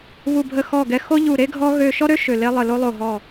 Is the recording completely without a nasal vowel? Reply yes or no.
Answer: yes